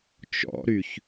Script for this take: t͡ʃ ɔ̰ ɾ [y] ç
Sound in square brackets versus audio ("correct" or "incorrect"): correct